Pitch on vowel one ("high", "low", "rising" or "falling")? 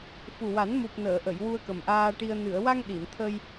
low